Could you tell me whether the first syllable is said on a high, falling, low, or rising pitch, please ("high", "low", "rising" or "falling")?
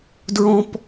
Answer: high